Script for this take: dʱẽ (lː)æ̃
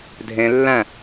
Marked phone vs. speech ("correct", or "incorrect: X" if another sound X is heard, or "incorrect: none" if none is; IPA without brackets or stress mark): correct